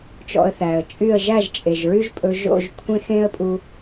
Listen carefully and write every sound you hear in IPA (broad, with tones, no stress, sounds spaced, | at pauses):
t͡ʃ ɔ̰˧ ə̯ θ æː˩ ə̯ t͡ʃʼ y˥˩ ə̯ ʒ æ˥˩ ʒ t͡ʃʼ e˩ ʒ ɹ y˥ ʒ pʼ ɵ˧ ʒ o̰˥˩ ʒ kʷʰ ẽ˥ x ẽ˥ ə̯ pʼ u˧